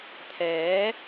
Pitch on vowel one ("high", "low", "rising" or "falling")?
rising